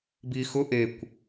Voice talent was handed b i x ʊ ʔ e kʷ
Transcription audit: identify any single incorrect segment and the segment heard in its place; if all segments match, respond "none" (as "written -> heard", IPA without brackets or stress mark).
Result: none